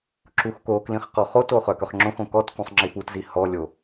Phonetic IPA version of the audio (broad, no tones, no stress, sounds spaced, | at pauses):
ǁ u x k o k l ĩ χ q ɔ χ o t o χ œ k œ χ ŋ͡ǁ õ x õ k ɔ t k ũ sˤ ŋ͡ǁ i p u t z i h ɔ lʲ o